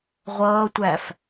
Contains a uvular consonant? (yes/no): yes